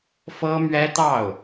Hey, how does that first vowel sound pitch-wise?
high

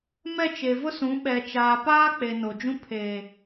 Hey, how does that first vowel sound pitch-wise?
falling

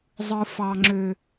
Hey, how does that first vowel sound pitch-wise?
low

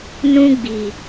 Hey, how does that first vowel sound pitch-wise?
high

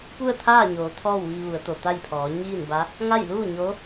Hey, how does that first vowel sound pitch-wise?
falling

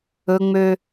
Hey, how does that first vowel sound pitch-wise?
high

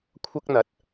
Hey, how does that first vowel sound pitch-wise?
high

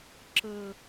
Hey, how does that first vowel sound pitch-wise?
low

